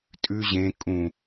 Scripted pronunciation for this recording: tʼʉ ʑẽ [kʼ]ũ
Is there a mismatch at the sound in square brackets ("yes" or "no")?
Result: no